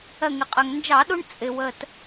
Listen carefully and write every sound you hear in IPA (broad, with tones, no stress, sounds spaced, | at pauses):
ɜ˧˩ ŋ ɪ˩ qʼ ɜ˩ ŋ n d͡ʒ ɑ˧˩˧ ɗ u˦ ɳ t͡sʼ ɪ˩ w ə˧˩ t